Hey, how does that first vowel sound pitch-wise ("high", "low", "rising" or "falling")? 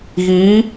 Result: rising